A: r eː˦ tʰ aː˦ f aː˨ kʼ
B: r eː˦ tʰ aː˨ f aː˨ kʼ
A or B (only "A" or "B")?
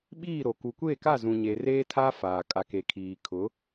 A